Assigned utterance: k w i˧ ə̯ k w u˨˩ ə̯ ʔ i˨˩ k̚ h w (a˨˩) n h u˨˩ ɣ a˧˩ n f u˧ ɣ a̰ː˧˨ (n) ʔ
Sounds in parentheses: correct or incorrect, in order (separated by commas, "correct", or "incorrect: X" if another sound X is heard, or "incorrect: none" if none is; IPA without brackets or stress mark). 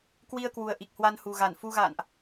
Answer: incorrect: a˧, correct